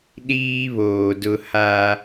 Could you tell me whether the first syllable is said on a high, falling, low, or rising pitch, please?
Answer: high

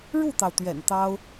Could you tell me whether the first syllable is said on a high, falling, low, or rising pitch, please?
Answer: falling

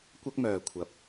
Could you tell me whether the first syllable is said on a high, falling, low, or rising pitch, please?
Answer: high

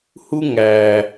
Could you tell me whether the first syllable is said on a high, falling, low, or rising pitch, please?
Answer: high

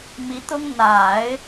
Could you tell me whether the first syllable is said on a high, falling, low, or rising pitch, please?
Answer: rising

